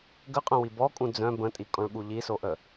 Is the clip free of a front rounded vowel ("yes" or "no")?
no